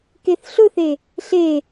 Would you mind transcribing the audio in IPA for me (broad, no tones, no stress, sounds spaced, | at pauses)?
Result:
k e θ ɬ ʊ θ e | ɬ e